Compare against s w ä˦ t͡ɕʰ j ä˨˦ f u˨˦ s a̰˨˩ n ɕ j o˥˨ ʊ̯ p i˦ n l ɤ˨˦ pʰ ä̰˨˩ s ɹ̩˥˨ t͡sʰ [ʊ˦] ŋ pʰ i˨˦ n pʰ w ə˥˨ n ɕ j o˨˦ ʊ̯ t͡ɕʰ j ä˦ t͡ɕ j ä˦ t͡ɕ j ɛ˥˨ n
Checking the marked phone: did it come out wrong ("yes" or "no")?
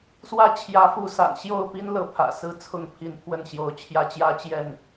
yes